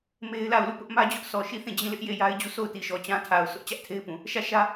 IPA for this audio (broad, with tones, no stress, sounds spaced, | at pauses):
m e˦ ɪ̯ l a˦˨ ʊ̯ l u˦˨ p ʊ˦ ʔ m ä˦ d͡ʑ ʊ˦ ʔ sʰ ɔ˨ ʃ i˦˨ θ ĩ˦˨ d͡ʑ ĩ˦˨ l ɪ˦ ʔ j e˦˨ j a˦ ɪ̯ d͡ʑ u˦˨ sʰ o˦˨ ʊ̯ t i˨ ʃ ɔ˨ t͡ɕ ã˦ tʰ a˨ ʊ̯ sʰ ʊ˦ ʔ t͡ɕ ä˦ ʔ tʰ e˦ ɪ̯ p ũ˨ | ʃ ä˦˨ ʃ ä˦